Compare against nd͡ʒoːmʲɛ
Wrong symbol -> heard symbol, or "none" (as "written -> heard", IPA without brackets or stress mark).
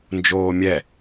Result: none